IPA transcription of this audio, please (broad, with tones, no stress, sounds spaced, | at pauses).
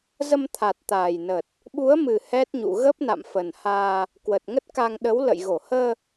z ə˧ m t̪ʰ a˨˩ t̚ t̪ aː˨˩ j n ə˨˩ t̚ | ɓ u˨˦ ə̯ m ɨ˨˩ h ɛ˦˥ t̚ ɲ ṵ˧˨ ɣ ə˦˥ p̚ n a̰˧˨ m f ə˨˩ n h aː˧ | k w ə˨˩ t̚ ŋ ə˦˥ t̚ k a˧ ŋ ɗ ə˨˦ w l ə̰˧˨ j ɣ o˧˩ h əː˧